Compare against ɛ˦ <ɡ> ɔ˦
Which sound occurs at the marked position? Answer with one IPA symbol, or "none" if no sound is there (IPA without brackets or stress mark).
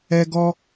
ɡ